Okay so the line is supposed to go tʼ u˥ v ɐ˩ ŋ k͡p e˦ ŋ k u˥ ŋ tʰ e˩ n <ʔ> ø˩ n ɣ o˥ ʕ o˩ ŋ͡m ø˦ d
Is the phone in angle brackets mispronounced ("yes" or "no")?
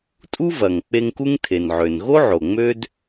yes